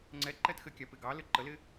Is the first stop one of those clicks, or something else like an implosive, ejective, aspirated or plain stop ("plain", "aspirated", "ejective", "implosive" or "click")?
click